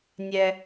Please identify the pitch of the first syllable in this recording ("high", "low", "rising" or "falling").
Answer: low